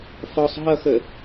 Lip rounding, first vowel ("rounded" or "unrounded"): rounded